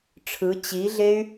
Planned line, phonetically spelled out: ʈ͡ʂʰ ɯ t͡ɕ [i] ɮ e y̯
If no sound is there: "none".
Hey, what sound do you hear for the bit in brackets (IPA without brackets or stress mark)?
i